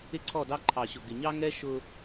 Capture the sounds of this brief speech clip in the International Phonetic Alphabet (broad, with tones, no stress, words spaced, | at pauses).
ɪ˦ǀʰɔ˦˨dɑ˦ ǃʰɑ˨ɕʊ˨ ɡɪ˨ɲɑ˦ŋɛ˦ ʃʊ˦